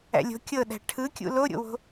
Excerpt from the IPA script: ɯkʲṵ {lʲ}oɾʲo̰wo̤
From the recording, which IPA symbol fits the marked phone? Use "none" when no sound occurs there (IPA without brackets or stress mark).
l